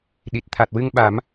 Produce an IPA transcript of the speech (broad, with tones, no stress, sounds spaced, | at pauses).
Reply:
ɗ i˨˩ t̚ t̪ʰ a˨˩ t̚ w ɨ˧ ŋ ɓ a˨˩˦ m